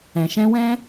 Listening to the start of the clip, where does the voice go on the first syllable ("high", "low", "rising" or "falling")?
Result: low